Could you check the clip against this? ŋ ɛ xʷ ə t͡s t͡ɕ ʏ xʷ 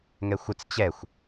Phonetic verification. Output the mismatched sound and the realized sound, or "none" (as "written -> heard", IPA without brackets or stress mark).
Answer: ʏ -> ɛ